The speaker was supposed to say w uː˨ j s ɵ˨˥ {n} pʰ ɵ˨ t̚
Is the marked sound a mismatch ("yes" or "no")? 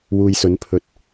no